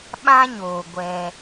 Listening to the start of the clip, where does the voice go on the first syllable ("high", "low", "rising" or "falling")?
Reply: high